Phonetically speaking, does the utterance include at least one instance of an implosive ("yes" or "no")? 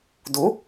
no